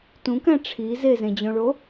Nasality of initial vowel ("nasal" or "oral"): nasal